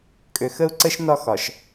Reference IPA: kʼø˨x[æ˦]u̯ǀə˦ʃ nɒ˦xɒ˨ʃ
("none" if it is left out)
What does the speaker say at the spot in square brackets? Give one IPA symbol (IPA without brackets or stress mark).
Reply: ə˦